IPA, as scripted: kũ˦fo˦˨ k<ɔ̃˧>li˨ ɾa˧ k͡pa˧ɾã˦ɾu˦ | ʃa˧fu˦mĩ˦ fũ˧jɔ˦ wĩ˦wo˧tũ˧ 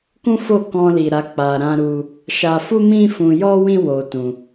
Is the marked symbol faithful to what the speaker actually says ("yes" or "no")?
yes